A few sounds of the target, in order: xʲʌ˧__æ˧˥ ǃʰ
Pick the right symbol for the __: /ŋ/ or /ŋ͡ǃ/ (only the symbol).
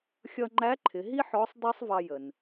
ŋ͡ǃ